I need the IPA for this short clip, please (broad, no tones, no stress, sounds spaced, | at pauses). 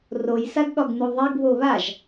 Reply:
r o j s a ɡ ɠ ɒ ɡ n u ðˤ e ɡ β o β a ʒ